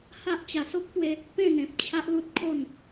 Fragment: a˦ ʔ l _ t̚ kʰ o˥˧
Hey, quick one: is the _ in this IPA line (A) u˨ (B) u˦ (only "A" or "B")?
B